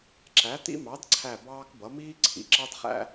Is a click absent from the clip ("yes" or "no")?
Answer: no